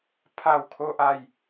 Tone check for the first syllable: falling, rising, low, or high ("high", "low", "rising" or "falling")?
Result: falling